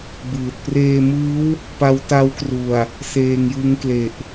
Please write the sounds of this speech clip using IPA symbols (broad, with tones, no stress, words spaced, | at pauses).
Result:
bɯː˨˩t̚ preː˧mɯː˦˥w | pa˦˥wta˦˥wkru˨˩a̯ | seː˧ŋjɯ˦˥ŋ kle˨˩ʔ